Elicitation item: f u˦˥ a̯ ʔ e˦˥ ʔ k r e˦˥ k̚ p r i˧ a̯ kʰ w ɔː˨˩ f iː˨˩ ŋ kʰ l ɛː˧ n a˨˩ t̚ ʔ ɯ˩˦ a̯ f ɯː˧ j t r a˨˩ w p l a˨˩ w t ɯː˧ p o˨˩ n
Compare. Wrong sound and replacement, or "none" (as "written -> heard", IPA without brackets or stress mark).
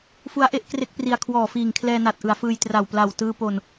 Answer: none